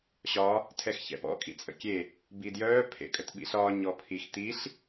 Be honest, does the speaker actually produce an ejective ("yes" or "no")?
yes